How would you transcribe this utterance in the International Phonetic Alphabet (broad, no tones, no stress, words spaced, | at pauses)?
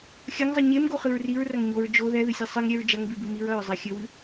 xʲɐŋzˤɨ ɲemɡoχɨɹ riɹrɐŋ ɲoɹ d͡ʒo ðɛðɨsʲɛ sˤɨŋɾʲɛɹ d͡ʒɐŋbibɨ miɹɐɹzˤɛ xʲɘwɨ